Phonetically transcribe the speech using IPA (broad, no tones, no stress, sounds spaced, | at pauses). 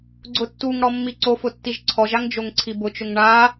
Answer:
ɡ͡ǀ ʊ tː u ŋ ɽ ɔ mː i ǀ o f ʊ tː i ʒ ǀʰ ɔ ʒ a ŋ d͡ʒ o ŋ ǀʰ i b ʊ t͡ʃ ʊ ŋ ɳ a